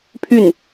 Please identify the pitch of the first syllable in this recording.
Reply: falling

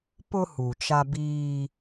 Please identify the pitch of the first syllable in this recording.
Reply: high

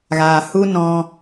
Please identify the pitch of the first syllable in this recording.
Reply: low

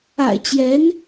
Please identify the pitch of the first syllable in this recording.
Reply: low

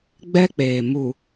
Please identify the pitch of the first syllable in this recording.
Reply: high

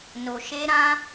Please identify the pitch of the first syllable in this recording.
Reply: low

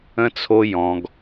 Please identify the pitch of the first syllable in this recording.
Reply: high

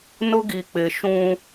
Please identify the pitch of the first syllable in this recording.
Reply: high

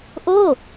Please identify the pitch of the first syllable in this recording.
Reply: falling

